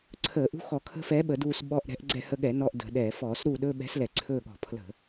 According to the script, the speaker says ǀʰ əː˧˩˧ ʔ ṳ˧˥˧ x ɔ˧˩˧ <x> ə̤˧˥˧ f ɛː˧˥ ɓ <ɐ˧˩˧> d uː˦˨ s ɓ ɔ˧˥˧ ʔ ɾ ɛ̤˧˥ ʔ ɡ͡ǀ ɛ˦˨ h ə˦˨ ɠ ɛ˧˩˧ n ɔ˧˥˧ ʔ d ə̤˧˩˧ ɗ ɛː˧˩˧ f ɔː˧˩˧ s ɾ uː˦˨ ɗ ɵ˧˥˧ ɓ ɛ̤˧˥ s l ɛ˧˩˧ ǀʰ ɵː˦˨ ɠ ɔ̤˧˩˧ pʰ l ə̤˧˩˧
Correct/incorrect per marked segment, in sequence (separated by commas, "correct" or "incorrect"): incorrect, incorrect